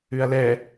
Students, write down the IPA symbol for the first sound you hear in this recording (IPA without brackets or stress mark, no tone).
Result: ʉ